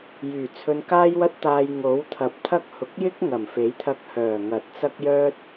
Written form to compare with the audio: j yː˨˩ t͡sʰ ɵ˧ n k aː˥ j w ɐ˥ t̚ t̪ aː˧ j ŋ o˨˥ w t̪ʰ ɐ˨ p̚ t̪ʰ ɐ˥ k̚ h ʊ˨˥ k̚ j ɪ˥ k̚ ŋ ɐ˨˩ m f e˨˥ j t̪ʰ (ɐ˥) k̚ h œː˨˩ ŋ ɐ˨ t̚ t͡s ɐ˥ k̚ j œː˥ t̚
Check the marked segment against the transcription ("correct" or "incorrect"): incorrect